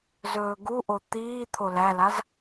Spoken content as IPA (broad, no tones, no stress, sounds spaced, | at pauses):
z ɵː ɡ u ʔ o t̪ iː t̪ʰ o l æ l a z